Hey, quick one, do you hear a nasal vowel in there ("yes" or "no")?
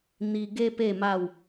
no